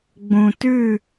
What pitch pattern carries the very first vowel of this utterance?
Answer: low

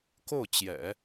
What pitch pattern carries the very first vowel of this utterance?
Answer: falling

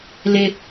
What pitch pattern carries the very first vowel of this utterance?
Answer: high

